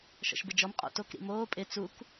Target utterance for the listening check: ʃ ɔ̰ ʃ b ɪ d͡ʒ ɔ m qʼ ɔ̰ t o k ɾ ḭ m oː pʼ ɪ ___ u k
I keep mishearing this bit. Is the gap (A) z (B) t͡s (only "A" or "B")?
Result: B